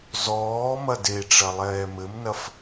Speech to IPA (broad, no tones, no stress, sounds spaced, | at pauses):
z ɔː m ɐ d e ʈ͡ʂ ɐ lˠ ɛː m ɘ m n ɐ f